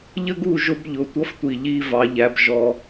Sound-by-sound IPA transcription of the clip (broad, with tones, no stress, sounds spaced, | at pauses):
ʎ ə˦ ɡ u˦˨ ʒ ʊ˧ b ʎ ʊ˨ tʷ ʌ˦ f tʷ i˨ ʎ i˦ v ɑ˧ ʎ æ˦ b ʒ ɔ˦